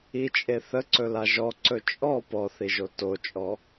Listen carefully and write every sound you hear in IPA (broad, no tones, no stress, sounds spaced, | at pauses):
i t͡ʃʼ e θ ə ǀ ɵ l a ʒ ɔ ǀ ɵ t͡ʃʼ ɔ p ɔ θ i ʒ o t o t͡ʃʼ ɔ